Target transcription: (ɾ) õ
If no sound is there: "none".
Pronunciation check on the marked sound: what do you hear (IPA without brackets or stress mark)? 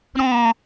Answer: ɾ